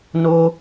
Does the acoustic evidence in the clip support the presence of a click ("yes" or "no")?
no